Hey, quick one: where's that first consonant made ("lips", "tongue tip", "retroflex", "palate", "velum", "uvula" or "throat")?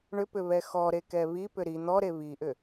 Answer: retroflex